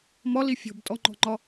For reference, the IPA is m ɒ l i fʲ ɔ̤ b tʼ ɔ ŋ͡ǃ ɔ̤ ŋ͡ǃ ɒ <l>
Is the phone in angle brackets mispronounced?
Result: yes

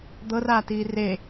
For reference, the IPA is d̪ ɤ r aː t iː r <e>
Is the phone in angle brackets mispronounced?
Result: no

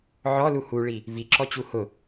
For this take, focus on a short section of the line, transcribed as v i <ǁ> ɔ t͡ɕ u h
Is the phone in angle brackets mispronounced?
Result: no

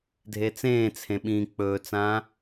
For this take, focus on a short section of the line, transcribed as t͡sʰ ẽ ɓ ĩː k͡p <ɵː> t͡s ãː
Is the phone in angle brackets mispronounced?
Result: no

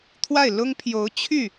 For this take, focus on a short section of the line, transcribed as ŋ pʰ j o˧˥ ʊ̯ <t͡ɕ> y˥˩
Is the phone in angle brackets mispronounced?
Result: yes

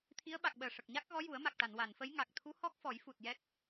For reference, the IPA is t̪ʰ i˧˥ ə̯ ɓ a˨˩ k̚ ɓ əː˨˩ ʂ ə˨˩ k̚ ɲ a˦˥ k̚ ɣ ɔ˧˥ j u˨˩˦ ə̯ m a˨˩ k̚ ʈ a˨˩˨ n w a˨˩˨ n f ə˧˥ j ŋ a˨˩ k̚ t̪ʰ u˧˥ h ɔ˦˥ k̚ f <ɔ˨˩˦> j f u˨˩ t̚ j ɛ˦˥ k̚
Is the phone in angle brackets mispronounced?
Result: no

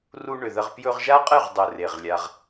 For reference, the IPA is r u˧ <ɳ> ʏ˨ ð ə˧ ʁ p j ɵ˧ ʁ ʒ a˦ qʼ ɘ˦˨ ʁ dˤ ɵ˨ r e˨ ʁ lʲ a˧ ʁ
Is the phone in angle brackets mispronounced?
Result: no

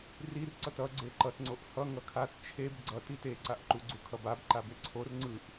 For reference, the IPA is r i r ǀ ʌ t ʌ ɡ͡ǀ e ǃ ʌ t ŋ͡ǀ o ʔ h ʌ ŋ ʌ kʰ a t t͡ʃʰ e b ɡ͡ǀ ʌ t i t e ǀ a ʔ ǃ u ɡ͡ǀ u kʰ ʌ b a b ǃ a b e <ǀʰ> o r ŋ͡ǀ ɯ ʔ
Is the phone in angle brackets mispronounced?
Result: no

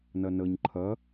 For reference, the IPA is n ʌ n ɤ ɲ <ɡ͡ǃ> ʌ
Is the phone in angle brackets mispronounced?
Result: yes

